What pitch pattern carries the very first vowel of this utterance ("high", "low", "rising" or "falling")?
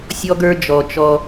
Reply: high